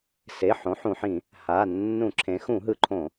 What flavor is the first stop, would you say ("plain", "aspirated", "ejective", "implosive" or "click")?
click